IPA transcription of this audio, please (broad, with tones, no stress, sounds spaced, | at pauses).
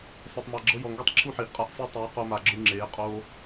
f a˨ tˤ m a˨ ɡ͡ǁ ɤ˧ j ɔ˨ ŋ ɡ i˧ tˤ ǁʰ u˦ ħ iː˨ ʔ qʼ a˧ ʔ f ɯ˧ tˤ eː˨˦ q o˧ m a˨ ɡ͡ǁ ɯ˧ ŋ͡ǁ eː˨˦ qʼ oː˦